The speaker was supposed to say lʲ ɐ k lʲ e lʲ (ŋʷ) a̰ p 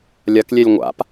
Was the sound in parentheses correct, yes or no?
yes